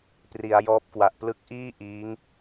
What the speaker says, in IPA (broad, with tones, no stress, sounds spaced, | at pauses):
p r i˩˦ a̯ j ɔː˦˥ p̚ k w a˨˩ ʔ p l ɯ˦˥ k̚ ʔ iː˥˩ ʔ iː˦˥ ŋ